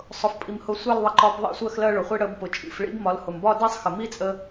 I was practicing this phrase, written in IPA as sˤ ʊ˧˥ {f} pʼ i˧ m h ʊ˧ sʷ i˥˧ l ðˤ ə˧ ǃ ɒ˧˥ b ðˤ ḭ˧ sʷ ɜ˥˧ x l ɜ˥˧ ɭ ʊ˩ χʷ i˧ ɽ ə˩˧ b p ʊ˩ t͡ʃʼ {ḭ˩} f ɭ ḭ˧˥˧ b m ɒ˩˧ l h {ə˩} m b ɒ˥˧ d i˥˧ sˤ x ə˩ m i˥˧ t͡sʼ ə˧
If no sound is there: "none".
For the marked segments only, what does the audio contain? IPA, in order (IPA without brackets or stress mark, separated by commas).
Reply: f, ḭ˩, ʊ˩